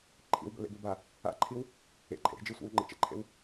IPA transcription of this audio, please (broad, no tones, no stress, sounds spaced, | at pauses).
ǃʰ ḭ w b ə̰ l ḛ b e b a | a̰ ǃʰ i w | ḛ ǃʰ ḛ ɾ e̤ d͡ʒ ɨ sʷ ḭ w ŋ͡ǃ ḛ t͡ʃ ə̰ ǃʰ ḛ w